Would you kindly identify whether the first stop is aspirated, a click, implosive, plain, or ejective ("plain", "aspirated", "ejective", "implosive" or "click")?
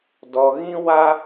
plain